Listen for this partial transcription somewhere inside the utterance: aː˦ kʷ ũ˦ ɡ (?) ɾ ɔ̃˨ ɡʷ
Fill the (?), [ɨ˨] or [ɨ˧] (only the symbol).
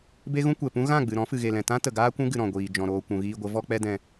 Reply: ɨ˨